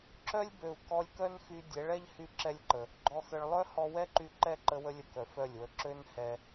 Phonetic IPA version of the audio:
ǁ œ˦ lʲ b ø˨ u̯ k ɔ˧ lʲ k œ˦ n x y˧ dʲ ɛ˨˦ ɭ ɛ˦ ʎ h y˦ ǁ ɛ˦ lʲ ǃ ə˨ | ɡ͡ǃ ɔ˨ x ə˨ ɭ lˠ œ˦ h ɔ˧ w ɛ˦ ǃ y˧ ǃ ɛ˦˨ ǃ ə˧ w ə˧ lʲ ə˨ k œ˨ f œ˦˨ lʲ w ə˧ ǁ ø˦ n h ɛ˧

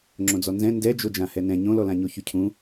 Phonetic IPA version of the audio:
ŋ͡ǁ õ d͡z ɔ n z ɛ̃ n d ɛ d͡ʒ o d͡ʒ ã h ɛ n ɛ̃ ɲ õ l ɔ l ã ɲ o ç y cʰ ũ

